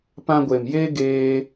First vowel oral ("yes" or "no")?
no